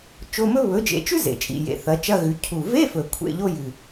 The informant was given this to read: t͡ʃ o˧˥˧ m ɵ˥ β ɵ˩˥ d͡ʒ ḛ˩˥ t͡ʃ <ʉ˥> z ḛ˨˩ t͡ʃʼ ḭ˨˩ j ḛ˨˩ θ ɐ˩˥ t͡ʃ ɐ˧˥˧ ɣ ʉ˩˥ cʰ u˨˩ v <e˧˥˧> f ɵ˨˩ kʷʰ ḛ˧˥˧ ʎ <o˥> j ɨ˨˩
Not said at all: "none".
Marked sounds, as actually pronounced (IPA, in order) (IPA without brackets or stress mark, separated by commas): ʉ˥, e˧˥˧, o˥